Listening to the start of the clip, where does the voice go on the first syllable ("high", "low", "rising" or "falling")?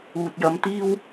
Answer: low